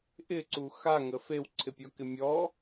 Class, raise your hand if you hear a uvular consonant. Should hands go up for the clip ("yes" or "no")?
no